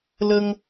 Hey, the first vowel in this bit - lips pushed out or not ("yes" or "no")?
no